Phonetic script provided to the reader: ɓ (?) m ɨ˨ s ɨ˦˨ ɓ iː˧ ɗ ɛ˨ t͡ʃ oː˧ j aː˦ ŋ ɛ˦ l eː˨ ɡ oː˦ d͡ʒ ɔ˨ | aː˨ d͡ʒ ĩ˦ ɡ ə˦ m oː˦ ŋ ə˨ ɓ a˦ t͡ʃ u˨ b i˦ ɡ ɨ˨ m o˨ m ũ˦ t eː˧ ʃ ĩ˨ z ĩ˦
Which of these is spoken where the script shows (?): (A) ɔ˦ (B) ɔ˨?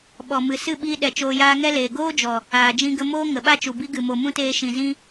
B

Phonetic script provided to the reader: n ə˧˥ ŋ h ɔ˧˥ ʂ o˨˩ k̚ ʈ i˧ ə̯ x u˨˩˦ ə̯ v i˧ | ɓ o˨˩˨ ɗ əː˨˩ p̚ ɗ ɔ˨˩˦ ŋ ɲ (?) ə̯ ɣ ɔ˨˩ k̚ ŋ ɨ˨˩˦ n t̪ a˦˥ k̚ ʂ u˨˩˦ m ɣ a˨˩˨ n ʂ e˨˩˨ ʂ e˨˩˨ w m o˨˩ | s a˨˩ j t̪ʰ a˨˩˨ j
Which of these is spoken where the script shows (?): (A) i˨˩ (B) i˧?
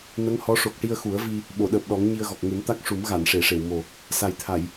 B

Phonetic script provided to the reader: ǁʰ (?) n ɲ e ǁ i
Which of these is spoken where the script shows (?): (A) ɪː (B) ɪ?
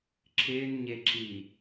A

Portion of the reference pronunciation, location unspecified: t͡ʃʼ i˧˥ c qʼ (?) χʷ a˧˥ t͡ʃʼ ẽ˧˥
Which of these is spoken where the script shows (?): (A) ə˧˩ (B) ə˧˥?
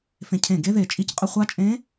B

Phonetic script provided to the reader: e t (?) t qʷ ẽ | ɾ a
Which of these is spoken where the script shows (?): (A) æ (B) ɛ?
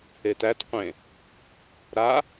A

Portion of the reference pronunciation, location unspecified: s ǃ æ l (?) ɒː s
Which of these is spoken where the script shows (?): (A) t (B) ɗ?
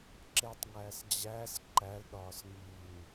B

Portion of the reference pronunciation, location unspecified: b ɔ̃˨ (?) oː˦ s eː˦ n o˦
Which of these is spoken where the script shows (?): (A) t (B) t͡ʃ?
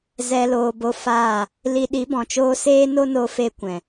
B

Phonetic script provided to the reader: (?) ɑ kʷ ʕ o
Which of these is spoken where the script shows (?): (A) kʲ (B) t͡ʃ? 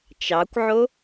B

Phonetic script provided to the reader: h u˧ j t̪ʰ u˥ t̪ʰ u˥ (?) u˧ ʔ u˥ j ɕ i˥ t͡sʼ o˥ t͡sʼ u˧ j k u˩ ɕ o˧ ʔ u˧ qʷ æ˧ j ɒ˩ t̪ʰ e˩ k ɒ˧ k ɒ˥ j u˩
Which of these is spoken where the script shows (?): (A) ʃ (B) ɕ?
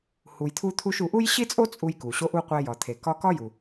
A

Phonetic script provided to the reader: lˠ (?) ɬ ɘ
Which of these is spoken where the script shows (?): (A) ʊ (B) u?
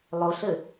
A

